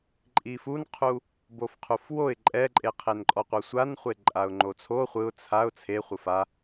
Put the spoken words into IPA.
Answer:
ǃʼ i f u n qʰ u | b o f qʰ u f w o ɪ̯ ǃʼ ɛ ǃʼ e qʰ e n ǃʼ ɔ qʷ ɤ sʷ a n χʷ e ǃʼ a ʊ̯ ŋ͡ǃ o t͡sʰ o χʷ ɯ ʊ̯ t͡sʰ a ʊ̯ t͡sʰ e χʷ ɯ f a

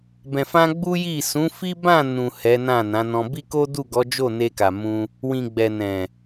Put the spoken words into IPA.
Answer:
b ɛ̃˨ f ã˧ ɡ͡b u˦ j i˦˨ s ũ˨˦ f i˦ b ã˦˨ n ũ˨ h ɛ˨˦ n ã˦˨ n ã˨˦ n ɔ̃˧ b i˦ k o˦ d u˦˨ ɡ ɔ˨˦ d͡ʒ o˦˨ n e˧ k a˨ m ũ˧ | w ĩ˨ ɡ͡b ɛ˨ n ɛ̃˨

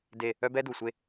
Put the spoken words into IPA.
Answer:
d e˦˨ | œ˦ b ɛ˦ d u˨ sʷ e˦

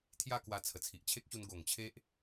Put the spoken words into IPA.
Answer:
t̪ʰ j a˥˧ k w a˧ t͡sʰ ə˨˩ t͡sʰ i˨ ʔ t͡ɕʰ e˦ k̚ ɕ u˧ n ɡ o˨˩ ŋ t͡ɕʰ e˦ ʔ

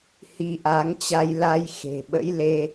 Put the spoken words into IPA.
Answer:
h i˧ ʔ a˨˦ ŋ t͡ɕ a˧ j l a˧ j x e̤˨˩ ɓ ə̰˧˥ j l e˧

